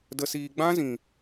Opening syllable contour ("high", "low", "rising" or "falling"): low